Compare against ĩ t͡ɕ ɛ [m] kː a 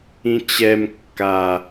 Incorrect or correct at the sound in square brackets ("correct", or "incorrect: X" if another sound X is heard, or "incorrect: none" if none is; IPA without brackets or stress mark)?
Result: correct